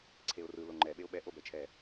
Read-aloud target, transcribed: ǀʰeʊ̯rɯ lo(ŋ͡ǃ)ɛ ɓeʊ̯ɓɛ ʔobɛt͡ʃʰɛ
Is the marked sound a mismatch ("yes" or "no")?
no